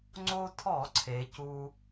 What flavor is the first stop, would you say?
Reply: click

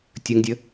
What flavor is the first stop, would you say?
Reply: plain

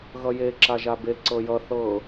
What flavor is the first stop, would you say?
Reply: click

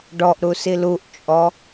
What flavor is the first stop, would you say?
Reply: plain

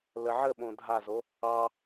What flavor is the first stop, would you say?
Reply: implosive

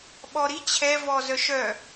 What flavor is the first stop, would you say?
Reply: implosive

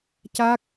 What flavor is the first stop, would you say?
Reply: plain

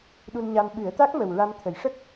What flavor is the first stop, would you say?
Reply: implosive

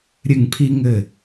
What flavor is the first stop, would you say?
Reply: aspirated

